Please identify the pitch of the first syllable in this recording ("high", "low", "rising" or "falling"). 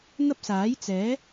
high